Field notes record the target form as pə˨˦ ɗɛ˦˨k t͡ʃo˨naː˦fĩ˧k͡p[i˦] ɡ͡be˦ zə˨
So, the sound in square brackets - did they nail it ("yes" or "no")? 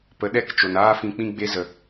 no